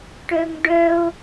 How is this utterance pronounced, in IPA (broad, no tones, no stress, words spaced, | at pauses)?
ʈœŋɖœo̯